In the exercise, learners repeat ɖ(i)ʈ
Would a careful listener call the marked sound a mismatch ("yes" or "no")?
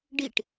no